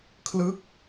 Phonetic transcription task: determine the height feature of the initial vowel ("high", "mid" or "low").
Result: high